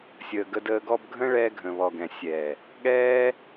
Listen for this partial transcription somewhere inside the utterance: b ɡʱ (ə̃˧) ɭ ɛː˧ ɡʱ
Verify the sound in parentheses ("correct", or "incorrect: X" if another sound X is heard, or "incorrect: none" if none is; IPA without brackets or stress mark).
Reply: incorrect: ə̃˦